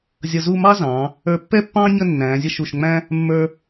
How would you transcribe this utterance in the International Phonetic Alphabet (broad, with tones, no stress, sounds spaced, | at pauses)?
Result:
zʲ ʌ˧ z u˥˧ m ɑ˥ z ɑ̃˩˧ | ə˞˧ pː ɛ˥ pː ɑ̃ː˥ ɲ ə˥˧ nː æ̃ː˩˧ zʲ ə˥˧ ʃ u˧˩ ʃ ŋ͡m æ̃˥ | mː ə˞˧